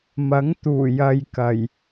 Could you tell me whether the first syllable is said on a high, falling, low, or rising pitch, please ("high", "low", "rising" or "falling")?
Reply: rising